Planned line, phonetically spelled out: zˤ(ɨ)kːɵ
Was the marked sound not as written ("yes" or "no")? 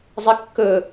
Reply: no